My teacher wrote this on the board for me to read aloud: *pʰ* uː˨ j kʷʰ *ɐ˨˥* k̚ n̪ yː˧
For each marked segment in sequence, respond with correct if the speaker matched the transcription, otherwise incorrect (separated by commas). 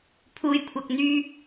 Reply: correct, incorrect